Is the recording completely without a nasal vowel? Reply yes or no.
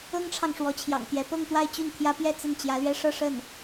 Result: yes